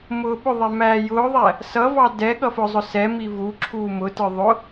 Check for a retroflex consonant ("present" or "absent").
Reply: absent